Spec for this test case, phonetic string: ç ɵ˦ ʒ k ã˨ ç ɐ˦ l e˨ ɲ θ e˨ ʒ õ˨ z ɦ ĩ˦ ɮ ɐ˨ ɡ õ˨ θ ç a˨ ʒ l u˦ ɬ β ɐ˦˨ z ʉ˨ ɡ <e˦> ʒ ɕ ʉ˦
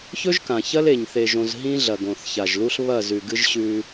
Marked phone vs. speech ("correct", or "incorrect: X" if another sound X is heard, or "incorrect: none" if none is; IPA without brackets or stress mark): incorrect: ɨ˦